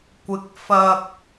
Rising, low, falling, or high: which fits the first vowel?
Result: rising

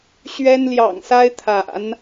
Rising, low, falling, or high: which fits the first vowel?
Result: high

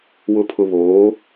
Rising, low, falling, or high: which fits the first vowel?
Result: low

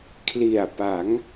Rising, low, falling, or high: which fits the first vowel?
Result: low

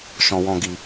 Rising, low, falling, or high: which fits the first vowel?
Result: low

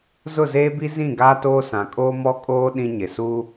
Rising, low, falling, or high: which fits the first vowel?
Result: falling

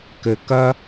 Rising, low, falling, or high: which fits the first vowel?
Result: low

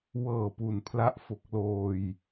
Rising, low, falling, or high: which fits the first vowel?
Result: low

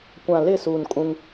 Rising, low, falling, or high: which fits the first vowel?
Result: low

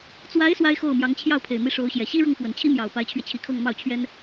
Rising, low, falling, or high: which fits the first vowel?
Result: rising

